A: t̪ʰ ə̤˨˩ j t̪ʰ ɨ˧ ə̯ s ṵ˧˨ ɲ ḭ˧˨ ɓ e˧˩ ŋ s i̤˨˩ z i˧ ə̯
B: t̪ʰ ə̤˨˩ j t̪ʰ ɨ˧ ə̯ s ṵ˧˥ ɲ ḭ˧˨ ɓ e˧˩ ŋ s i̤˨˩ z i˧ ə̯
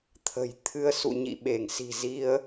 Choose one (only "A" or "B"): A